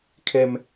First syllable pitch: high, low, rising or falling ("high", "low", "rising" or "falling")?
high